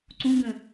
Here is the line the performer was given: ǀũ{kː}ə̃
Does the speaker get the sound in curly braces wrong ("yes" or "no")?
yes